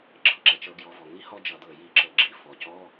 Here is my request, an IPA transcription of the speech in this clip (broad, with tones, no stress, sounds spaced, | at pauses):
ɡ͡ǁ ɤ˩ ǁ ɛ˩ t͡ʃ ɤ˧˩˧ ɡ j ɔ˩˧ v ɔ˩ ŋ i˥ h ɔ˥ d͡ʒ ʌ˧˩˧ d̪ ɤ˧˩ j i˧˩˧ ǁ ɤ˩ ɡ͡ǁ i˧˥˧ f ɔ˩˧ c ɔ˧˥˧